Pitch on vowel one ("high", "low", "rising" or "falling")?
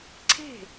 falling